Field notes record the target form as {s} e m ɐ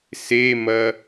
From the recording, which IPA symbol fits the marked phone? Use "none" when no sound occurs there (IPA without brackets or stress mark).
s